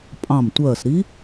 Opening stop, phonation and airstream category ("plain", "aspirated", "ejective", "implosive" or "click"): ejective